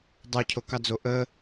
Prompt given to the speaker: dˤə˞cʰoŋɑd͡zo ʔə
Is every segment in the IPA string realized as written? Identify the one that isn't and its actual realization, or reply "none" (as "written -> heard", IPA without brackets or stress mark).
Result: ŋ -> k